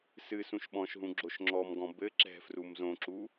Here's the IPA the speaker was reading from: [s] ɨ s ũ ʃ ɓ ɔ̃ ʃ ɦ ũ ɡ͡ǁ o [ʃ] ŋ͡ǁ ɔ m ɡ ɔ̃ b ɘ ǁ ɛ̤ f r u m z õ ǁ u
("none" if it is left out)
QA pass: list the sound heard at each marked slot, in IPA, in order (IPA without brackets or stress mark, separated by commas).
s, ʃ